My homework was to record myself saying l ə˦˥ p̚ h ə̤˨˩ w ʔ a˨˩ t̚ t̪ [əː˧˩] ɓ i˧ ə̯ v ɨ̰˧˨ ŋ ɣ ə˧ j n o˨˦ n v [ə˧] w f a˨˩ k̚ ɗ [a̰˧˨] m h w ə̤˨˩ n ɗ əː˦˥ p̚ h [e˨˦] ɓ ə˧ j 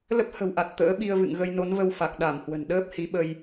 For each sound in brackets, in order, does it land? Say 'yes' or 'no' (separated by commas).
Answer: no, yes, no, no